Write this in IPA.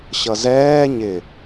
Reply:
ɕʌzɛː ɲɪ

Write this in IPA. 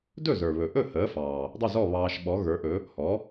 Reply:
dɵ˥˩zə˞˩βɵ˩ʔɵ˥˩ həː˩˥fɑː˩ | dˤɵ˥˩zɔ˥˩ βɑː˧ʃ ɓɔ˩˥ɣə˞˩˥ʔɵ˩˥ | hɔ˩˥

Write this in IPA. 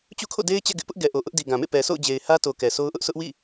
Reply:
t͡ɕṵ˦˨kʰo̰˦˨de˦ɪ̯t͡ɕɛ̰˦˨ ɡɪ˦ʔpʊ˦ʔɡɛ˨ʔo˨ ʔʊ˦ʔ di˨ɡã˨mḛ˦˨ pɛ˨sʰo̰˦˨ʊ̯d͡ʑe˨ɪ̯ hä˦to˨ kɛ˨sʰo˦ʊ̯ʔʊ˦ʔ sʰʊ˦ʔwḭ˦˨

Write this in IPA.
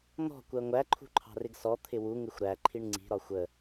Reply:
n̪ɔ̤ kʷɜŋʷæǃʰṳ ǃʰɑ̤rɪɡsɔ t̪ʰɪwu ŋɪxʷɾæ ǃʰiɳŋ͡ǀi̤ ɾɒxʷə

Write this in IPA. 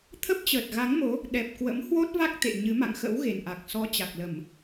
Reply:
t̪ʰə˦˥p̚t͡ɕəː˨˩t̚ɣa˨˦ŋmo˨˦ | ɗɛ˨˩p̚kwə̰˧˥mhwo˦˥t̚va˦˥k̚ t̪ḛ˧˨ɲɨ˨˦ ma̰˧˨ŋxə̰˧˥w ɣe˨˩nʔa˨˩k̚ sɔ˨˦t͡ɕa˨˩k̚lə˧˩˨m

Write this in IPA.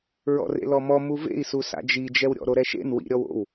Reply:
ɹɔ̰rḛlɔmɔ muvḛi̯su sa̰d͡ʒid͡ʒɛwɾʲɔ̰ ɾoɾɛʃḛn wḭɾʲɔw o̰w

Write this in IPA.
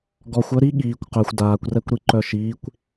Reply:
ɡɔxʷœ ɾi ɠiːkʷ qœxʷ daːkʷrɛkʷɾi ǃœʃiːkʷ

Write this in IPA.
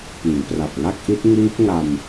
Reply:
piː˩˦pra˨˩p̚ŋa˥˩k̚ʔi˦˥t̚ ŋiː˦˥p̚ŋa˧m

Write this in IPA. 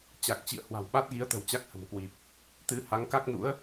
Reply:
t͡ɕa˨˩k̚t͡ɕḭ˧˨ə̯ hwa̤˨˩wɓa˦˥t̚ɣi˨˦ə̯t̪ə̤˨˩w t͡ɕa˦˥k̚hə̤˨˩mkwi˨˩p̚ | t̪ɨ˨˦ ha˨˦ŋka˦˥k̚nṵ˧˥ə̯

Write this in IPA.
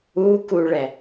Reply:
ukuɭɛ

